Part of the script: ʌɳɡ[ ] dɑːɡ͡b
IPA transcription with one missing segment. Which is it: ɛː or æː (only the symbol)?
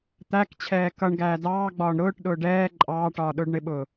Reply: æː